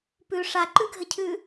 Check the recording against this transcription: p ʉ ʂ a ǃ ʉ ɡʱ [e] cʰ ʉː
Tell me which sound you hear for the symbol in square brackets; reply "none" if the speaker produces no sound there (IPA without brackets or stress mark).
ɘ